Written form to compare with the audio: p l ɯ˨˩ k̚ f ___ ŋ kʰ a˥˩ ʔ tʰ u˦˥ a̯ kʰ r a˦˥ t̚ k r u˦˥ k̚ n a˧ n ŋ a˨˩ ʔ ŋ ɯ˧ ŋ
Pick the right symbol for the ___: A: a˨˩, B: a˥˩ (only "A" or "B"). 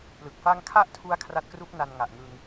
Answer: B